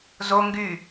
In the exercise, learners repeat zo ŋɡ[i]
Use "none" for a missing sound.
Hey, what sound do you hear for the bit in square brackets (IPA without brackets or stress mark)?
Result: y